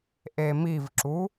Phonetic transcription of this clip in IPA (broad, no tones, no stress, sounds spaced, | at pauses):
ʔ e m i v ǁ u